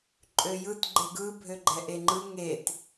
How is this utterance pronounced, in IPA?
ǃʼ ø j ɯ t ɡ͡ǃ e ɡ ɯ bʱ ø ɡ͡ǃ ɛ ʔ e ŋ͡ǃ ɯ ŋ e t

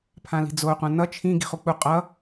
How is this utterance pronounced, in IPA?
pʰ ã l i̤ d͡z o qʷ ã n ʌ t͡ʃʰ ĩ ɡ i̤ χ u k͡p u qʼ ʌ

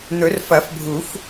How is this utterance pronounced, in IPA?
n̪ ɵ˨˩˦ r f ɐ˨˩˦ f bʱ u˨˩˦ f

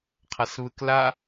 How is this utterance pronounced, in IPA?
qʰ a s β ɯ k l a

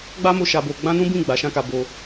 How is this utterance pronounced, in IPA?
ɡ͡b a˦ m o˧ ʃ a˧ b o˧ ɡ͡b ã˦ n ũ˦ b ĩ˦˨ ɡ͡b a˨˦ ʃ ã˦ k a˧ b o˧

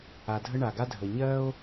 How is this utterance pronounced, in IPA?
a˩ dʱ ə˧ ɳ a˩ ɡ a˧ dʱ ə˩ ɲ ɜ˥ o̯

